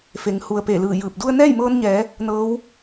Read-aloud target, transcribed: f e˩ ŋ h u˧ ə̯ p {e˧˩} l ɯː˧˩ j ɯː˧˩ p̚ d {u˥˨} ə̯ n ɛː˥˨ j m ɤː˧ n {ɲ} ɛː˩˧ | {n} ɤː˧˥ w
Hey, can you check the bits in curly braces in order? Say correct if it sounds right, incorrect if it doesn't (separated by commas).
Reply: correct, incorrect, correct, correct